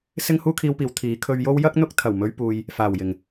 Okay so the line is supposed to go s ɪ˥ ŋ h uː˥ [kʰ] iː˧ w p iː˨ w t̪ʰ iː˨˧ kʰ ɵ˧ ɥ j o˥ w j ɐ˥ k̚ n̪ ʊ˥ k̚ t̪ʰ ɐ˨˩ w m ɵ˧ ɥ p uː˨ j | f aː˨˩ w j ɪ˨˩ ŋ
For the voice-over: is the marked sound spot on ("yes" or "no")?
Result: yes